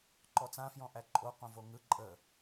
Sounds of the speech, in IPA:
ǃɔt͡sã fjɔ̃ʔæǃʼo qõvoŋɯ ǃʼə

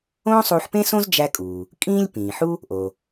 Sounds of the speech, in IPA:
õː˥sˤuː˧ħpẽ˥sõ˥z d͡ʒæ˥kʼuː˩ | kʼĩː˥lʲpĩː˩ħu˥ | ʔo˩

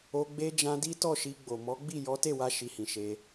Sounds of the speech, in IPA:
o˧ɡ͡be˧d͡ʒã˧ di˦tɔ˦˨ʃi˧ɡ͡bo˨ mɔ˨˦ɡ͡bi˦˨ jɔ˨˦te˦˨wa˧ʃi˨ hĩ˨ʃe˧

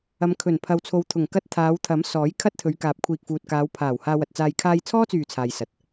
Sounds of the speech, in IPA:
ɐ˨˧m kʰɵ˨˩npʰɐ˨wt͡sʰo˨wt̪ʰʊ˨˩ŋ kɐ˧t̚ t̪ʰaː˨˧wt̪ʰɐ˨˥m sɔː˨˥j kʰɐ˥t̚t̪ʰɵ˨˧ɥ kaː˨˥p̚kʷʰiː˨k̚fuː˨t̚ kaː˨˧wpʰaː˨˩w haː˧wɐ˨t̚t͡saː˧j kʰaː˧jt͡sʰɔː˥t͡syː˨˩ t͡sʰaː˨jsɐ˨t̚

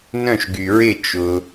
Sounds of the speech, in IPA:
nœ̃˥˩ʃɡy˩ɹɪ˥˩ t͡ʃʊ˩

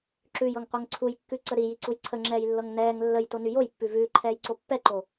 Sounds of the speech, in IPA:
ǁʉjɤŋqʷɤŋ ǀʰujkːʉǀə ɾijiǀuj ǀʰəŋ͡ǁɛːjlːɤŋ nɛːŋ lːəjtony jojpːʉ vʉːǃʰɛːjǀo pːɛǃo

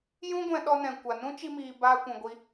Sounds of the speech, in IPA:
jũ˦ɡʷɛ̃˧ ɗɔ˧nɛ̃˨kʷa˨nũ˦ t͡ʃi˧miː˨ baː˧kʷũ˨ɡʷi˧

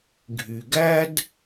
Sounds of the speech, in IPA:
ɡʱy˩ɡæ˥d

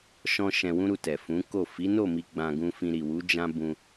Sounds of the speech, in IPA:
ʃɔ̃˧ ʃɛ̃˧wũ˦ɾu˧ tɛ˨fũ˨˦ko˦˨ fi˨˦no˦˨mi˧ ɡ͡bã˧ɡũ˧fĩ˧ ɾi˨wu˨˦ d͡ʒã˦ bũ˧

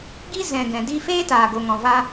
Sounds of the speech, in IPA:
ɡi˦zɛ̃˨ ɡɛ̃˨di˦ feː˦taː˨ɡo˨ ŋɔ̃˨va˧

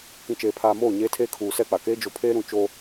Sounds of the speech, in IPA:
kĩ˨t͡ʃeː˨pʰaː˨moː˦˨ ɲeː˦tʰeː˦ kʰuː˨sɛ˦˨k͡pa˨keː˦ d͡ʒo˨pʰeː˦ ɾũ˨ t͡ʃoː˦

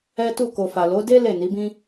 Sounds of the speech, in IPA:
ɛ˦tu˦˨ ko˨fa˨ lo˨˦de˦ le˦˨ni˨˦bĩ˦

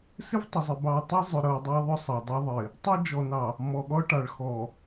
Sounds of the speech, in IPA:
sɪ˦vtˤʏ˨zˤe˨ bɑ˨tˤi˦zˤʏ˨ ɾɤ˨ dˤi˦ðˤʏ˦sˤɤ˨ dˤɤ˦ðˤɪ˨ | tˤɤ˦d͡ʒɔ˨nɑ˨ | mɔ˨ɠɔ˦ʈɑ˨ɭ xɔ˨

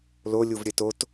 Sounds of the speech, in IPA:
lo lʲuvɾʲɘtot

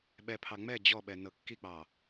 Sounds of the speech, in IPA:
ɓɛpʰɑ ŋ͡mɛ d͡ʑɔɓɛ nɤkːik͡pɑ

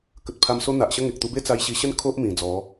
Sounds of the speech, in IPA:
kə˨t̚pʰa˧m so˧n̪a˨ʔɕə˧ ŋe˨k̚t̪u˧be˦ t͡sa˧jɕi˧ɕə˦n kʰo˦ʔmĩ˨˩ d͡zɔ˨˦

